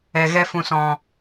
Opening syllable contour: low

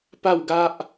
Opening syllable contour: falling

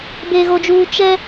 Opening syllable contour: low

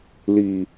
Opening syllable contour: low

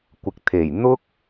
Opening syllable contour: low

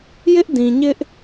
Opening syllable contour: high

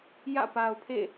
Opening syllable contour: falling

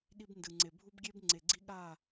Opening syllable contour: high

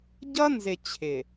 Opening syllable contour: high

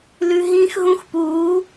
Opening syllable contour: high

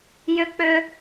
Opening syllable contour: high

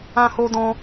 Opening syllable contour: high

